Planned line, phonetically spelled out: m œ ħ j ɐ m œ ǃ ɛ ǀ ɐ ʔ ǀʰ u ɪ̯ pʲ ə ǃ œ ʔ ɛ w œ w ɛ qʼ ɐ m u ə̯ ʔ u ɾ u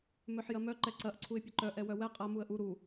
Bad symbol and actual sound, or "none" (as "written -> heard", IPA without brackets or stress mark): none